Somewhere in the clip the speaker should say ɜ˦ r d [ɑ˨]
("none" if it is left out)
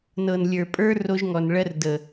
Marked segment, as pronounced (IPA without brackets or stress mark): ə˨